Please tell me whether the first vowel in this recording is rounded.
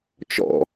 yes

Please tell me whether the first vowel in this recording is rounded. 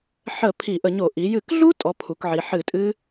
no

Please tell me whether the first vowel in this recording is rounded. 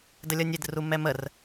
no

